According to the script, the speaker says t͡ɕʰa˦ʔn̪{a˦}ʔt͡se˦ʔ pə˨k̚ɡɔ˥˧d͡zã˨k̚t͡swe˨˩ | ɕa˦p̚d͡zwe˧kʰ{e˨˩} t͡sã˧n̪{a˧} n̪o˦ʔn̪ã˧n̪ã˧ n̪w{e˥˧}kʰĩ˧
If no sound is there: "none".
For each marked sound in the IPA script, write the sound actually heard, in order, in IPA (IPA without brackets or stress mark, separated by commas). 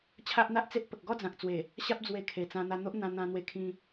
a˦, e˨˩, a˧, e˧